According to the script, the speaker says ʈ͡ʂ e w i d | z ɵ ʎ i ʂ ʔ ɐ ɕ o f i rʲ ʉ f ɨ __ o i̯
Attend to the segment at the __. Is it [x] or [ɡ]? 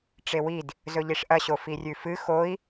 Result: x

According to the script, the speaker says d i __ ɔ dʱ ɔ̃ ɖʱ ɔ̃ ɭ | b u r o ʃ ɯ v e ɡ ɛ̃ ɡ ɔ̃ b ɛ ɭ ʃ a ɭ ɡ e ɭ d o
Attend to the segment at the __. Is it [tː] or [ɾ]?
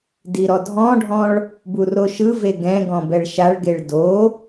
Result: ɾ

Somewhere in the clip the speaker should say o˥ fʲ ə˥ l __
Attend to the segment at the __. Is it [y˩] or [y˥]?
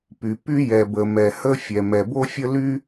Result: y˥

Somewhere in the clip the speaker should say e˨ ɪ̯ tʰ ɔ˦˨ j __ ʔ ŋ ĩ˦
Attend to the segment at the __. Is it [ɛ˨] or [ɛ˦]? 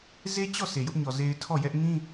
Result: ɛ˦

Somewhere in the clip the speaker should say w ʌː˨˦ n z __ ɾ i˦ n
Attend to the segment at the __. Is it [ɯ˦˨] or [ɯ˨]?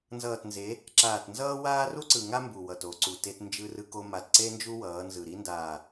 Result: ɯ˨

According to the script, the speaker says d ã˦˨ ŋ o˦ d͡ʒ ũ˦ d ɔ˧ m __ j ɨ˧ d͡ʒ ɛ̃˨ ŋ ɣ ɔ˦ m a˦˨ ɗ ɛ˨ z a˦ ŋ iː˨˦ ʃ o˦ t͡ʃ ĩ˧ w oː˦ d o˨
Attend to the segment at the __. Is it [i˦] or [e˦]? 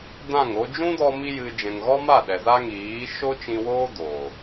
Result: i˦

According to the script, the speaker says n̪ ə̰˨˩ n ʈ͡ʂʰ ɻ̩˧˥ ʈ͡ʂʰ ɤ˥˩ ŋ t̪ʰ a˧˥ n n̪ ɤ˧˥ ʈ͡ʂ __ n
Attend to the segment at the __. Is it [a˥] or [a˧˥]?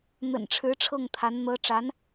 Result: a˧˥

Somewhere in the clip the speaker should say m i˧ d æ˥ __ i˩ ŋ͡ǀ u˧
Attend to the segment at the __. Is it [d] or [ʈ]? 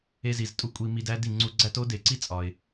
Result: d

